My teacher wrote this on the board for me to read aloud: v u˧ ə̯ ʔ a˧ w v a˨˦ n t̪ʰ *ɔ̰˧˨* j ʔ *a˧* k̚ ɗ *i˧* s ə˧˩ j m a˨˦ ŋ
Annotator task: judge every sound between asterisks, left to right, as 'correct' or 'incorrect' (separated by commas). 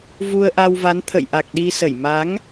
incorrect, incorrect, correct